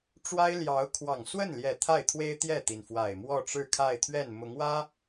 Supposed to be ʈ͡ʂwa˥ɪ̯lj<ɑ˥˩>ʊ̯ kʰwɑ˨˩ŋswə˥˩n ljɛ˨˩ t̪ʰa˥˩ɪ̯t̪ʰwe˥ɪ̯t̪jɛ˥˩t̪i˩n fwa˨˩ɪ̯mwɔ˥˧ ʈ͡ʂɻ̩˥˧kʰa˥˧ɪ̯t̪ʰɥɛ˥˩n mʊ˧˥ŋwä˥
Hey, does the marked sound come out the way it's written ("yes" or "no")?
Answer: no